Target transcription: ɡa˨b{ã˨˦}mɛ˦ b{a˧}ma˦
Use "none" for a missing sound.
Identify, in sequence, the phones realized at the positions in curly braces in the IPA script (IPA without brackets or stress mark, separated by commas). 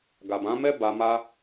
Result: ã˨˦, a˧